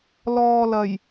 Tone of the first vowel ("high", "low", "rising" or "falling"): low